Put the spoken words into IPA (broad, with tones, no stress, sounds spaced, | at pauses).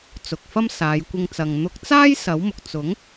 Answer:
t͡s ʊ˨ k̚ f ɐ˥ m s aː˨˧ j kʷ ɪ˧ ŋ t͡s ɐ˨ ŋ n̪ ʊ˨˥ k̚ t͡s aː˥ j s ɐ˨˥ w m ʊ˨ k̚ t͡s ʊ˨˥ ŋ